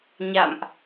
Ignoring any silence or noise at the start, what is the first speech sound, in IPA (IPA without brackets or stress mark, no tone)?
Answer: ɲ